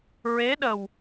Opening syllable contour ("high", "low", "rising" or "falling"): rising